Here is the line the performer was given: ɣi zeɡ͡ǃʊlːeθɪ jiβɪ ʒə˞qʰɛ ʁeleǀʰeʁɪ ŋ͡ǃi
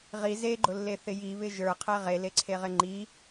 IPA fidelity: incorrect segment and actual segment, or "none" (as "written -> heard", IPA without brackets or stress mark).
ɣ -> ʁ